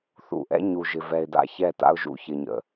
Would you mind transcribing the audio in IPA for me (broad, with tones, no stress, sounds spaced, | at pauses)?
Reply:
θ ṵ˨ ʔ ɛ̰˦ ɲ u˨ ʒ ɪ˨ v ɛ˨ ɪ̯ d a̰˦ ç ɛ˦˨ t a̰˦ ʊ̯ ʒ ṵ˨ ç ɪ˨ ɲ ə̰˨